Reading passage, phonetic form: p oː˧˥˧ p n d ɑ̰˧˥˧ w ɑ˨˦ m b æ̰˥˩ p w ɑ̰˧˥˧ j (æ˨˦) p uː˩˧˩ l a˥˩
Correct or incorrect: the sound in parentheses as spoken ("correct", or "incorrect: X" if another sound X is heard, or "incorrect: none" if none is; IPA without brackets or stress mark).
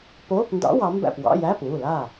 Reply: incorrect: æ˧˥˧